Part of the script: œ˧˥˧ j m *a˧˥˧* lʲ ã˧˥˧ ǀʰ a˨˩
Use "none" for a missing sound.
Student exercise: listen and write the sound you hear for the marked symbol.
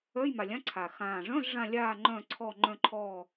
a˨˩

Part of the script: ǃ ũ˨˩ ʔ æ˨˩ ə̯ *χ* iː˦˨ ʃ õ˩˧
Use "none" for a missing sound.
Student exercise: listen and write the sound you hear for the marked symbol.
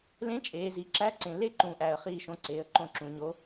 χ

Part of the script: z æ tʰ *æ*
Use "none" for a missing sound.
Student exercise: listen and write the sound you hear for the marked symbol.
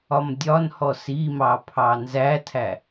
æ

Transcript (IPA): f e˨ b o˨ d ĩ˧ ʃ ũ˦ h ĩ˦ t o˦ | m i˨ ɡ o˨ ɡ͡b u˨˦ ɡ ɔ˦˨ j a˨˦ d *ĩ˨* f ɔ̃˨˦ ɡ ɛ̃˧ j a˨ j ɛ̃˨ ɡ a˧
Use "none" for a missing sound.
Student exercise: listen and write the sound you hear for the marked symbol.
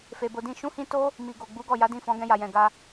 ĩ˦˨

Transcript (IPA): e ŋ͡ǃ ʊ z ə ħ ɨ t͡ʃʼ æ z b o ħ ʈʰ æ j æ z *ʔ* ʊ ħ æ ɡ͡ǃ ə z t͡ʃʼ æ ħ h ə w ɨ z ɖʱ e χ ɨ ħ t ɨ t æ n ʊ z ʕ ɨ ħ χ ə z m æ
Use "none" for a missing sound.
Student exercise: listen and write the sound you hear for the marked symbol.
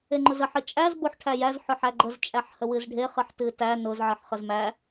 ħ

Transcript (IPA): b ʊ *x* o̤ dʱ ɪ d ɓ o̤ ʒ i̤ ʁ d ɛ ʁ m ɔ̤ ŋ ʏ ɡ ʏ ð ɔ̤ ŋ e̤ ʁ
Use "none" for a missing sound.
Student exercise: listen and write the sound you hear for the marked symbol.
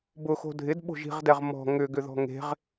x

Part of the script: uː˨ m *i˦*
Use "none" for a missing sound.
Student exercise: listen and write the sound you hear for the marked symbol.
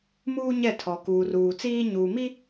i˦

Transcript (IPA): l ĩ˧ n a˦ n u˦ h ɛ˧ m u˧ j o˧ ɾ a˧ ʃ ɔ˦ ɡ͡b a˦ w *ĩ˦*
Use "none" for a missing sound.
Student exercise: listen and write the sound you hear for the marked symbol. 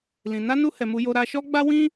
ĩ˦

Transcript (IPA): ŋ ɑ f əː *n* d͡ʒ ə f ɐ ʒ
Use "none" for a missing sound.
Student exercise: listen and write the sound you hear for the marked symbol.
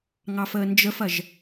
n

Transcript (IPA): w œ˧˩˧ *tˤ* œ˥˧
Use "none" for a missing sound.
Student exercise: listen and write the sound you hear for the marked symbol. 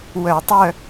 tˤ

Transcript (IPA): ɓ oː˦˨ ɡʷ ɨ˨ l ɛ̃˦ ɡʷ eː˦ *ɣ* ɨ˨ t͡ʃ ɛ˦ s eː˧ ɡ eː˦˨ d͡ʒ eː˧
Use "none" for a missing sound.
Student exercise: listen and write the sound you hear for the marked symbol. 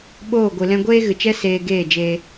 ɣ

